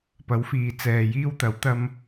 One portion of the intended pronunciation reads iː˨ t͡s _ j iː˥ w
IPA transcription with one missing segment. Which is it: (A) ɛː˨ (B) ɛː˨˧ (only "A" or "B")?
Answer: A